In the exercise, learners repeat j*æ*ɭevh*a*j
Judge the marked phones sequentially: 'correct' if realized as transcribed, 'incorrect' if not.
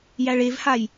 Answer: correct, correct

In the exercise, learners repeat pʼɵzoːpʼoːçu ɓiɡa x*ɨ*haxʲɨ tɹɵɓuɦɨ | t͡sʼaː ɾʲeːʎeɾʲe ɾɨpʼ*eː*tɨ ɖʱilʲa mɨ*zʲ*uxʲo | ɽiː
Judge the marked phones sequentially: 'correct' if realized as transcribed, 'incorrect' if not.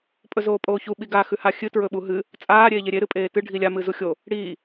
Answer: incorrect, correct, incorrect

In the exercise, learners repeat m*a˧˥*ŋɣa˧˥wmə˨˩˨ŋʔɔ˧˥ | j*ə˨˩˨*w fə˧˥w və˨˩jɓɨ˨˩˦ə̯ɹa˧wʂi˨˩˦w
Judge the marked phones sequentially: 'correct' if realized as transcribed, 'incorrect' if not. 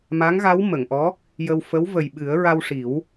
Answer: correct, incorrect

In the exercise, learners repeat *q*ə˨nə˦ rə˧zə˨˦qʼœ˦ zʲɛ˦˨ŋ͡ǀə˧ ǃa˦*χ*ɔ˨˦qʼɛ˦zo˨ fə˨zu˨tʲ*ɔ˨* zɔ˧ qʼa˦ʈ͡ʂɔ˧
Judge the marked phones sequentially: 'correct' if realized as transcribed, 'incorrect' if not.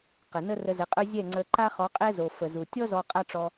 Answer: correct, correct, incorrect

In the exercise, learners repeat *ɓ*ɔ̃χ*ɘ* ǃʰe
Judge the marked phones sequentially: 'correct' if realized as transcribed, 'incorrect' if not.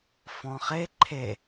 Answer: incorrect, incorrect

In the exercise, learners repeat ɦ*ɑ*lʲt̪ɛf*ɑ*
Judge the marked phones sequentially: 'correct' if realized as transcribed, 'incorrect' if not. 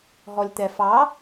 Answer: incorrect, correct

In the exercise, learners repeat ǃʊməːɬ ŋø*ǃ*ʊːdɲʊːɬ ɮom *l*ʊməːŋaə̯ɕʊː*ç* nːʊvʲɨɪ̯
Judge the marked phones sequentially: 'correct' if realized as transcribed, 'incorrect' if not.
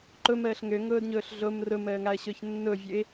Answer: incorrect, incorrect, correct

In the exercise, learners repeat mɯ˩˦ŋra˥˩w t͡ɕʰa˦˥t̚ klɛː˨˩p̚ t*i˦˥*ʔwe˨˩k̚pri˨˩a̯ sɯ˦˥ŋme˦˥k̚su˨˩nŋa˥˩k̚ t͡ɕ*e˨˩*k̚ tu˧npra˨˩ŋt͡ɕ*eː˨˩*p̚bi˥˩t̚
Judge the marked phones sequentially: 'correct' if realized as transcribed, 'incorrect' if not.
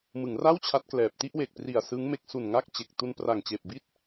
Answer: incorrect, correct, correct

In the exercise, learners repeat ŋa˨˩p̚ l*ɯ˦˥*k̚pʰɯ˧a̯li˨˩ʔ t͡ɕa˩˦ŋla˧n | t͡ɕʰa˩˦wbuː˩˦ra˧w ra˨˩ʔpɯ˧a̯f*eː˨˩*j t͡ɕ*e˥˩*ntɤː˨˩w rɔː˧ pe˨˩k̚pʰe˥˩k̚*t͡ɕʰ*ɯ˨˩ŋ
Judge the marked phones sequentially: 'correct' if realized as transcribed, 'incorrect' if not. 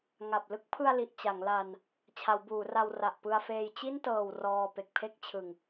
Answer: incorrect, incorrect, incorrect, correct

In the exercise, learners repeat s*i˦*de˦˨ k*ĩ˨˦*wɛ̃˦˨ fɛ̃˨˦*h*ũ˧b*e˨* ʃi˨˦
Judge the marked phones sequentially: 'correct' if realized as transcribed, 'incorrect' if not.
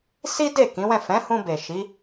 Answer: correct, correct, correct, correct

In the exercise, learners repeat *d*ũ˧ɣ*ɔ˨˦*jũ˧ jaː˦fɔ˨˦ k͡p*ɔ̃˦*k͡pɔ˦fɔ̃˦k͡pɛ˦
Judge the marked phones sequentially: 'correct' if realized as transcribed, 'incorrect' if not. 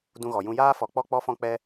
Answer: correct, incorrect, incorrect

